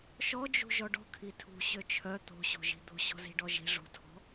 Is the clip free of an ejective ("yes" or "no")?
yes